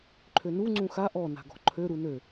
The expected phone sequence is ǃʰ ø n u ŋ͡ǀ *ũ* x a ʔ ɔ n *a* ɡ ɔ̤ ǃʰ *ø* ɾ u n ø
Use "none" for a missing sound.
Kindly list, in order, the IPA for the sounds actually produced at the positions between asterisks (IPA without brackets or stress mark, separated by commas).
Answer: ũ, a̤, ø